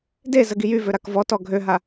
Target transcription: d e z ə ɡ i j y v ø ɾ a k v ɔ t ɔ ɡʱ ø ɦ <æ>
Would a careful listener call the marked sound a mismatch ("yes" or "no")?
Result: yes